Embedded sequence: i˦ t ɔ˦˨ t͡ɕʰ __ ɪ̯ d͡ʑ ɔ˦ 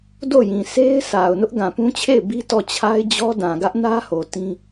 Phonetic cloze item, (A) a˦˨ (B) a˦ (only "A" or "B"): B